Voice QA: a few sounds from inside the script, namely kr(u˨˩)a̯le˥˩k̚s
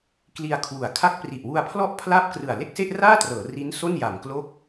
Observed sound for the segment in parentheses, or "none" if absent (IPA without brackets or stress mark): ɯ˨˩